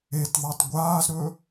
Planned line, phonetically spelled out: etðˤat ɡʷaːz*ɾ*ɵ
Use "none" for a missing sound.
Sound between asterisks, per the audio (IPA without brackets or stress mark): ɾ